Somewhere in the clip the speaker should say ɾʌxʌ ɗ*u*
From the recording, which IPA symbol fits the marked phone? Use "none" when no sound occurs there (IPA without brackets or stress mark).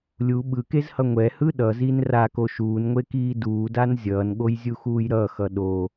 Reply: o